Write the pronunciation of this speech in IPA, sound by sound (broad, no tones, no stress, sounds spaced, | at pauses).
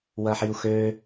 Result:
w ɐ ħ i u̯ x ø